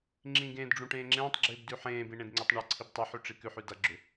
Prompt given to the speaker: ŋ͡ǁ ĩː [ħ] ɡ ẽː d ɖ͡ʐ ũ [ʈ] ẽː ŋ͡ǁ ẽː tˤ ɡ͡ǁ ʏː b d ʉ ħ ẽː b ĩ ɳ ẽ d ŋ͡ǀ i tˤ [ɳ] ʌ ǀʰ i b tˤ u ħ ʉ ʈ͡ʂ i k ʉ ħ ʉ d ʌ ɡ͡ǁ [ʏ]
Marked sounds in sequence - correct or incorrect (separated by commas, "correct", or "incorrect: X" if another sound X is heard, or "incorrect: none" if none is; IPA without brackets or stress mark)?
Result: incorrect: none, correct, correct, correct